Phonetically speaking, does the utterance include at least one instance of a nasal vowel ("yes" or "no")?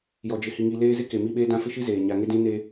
yes